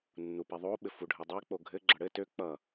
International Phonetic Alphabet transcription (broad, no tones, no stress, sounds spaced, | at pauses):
nː u p i ðˤ o ɓ ɘ f u ɖʱ ɘ dˤ i k͡p o ɡʱ ɘ ɡ͡ǁ ʌ ɽ ɘ t ø k͡p ʌ